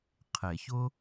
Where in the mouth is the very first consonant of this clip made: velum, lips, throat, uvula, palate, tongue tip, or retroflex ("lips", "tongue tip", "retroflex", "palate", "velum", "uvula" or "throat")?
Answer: uvula